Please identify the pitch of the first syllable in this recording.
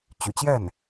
low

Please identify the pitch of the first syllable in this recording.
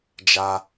high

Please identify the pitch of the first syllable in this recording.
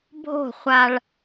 falling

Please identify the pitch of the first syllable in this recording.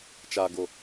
low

